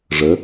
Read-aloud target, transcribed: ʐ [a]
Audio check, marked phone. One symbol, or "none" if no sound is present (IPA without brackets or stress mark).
ə